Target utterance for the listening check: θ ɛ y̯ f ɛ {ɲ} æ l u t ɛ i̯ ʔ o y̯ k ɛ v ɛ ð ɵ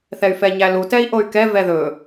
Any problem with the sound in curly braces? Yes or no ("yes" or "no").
no